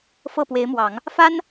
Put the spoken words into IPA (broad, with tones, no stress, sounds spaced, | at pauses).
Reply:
f ɤ˥˩ p w e˧˥ ɪ̯ m w ɑ˨˩˦ ŋ | f a˥ n